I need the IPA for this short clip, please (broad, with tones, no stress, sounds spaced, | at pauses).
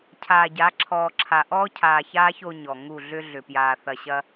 cʰ aː˨ ɟ a˨˦ ǁʰ ɔː˨ ǁʰ a˨ ʔ ɔː˦ cʰ aː˨ ç aː˦ ç o˦ ɲ ɔ˨ ŋ u˦˨ ɮ ʏ˦ ɮ ʏ˨ p j aː˨ θ ɐ˨ ɕ ɐ˦